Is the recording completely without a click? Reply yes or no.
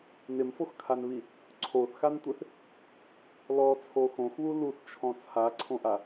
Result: no